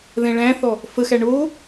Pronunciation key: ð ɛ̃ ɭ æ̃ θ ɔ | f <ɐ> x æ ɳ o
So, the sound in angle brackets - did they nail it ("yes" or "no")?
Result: no